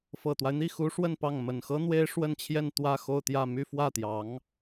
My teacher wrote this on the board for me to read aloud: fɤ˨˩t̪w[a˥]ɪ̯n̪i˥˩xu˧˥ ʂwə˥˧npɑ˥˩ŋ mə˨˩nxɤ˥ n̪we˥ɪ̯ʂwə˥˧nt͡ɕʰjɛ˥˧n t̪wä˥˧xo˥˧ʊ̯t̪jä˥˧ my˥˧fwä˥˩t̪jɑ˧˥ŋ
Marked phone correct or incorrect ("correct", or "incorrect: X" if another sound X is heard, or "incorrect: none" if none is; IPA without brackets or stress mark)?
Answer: incorrect: a˦